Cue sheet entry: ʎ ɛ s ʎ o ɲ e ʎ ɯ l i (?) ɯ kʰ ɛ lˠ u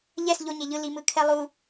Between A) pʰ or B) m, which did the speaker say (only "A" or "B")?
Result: B